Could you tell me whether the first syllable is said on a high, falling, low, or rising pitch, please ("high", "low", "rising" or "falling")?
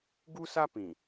high